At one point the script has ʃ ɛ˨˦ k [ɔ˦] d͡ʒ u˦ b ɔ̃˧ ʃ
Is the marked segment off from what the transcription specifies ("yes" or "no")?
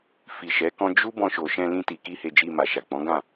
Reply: yes